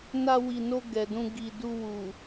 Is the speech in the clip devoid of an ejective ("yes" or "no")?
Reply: yes